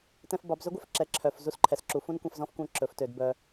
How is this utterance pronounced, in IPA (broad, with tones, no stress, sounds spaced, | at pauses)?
t ɛ̃˧ f b ɑ˩˧ b z ɵ˥ ɡʷ œ˥ f ǁ ɛ˩ ǁʰ œ˩ f z u˥ s ǃʰ ɛ˩ s ǁ u˩˧ f ũ˥ n kʷ ɛ̃˧ f z ɔ̃˥ f kʷ œ̃˧˥ ǁ ɵ˩˧ f t ø˩˧ d b œ˧